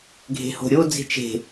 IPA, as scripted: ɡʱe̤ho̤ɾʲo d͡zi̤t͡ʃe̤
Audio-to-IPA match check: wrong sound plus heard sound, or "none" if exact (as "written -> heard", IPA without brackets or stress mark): none